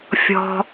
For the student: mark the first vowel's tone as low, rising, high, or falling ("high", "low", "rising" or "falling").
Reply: low